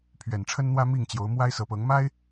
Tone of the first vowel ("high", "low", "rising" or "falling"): low